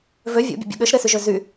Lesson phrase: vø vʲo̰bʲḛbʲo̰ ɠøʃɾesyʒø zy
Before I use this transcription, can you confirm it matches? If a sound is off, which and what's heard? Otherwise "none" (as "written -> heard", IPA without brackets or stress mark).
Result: none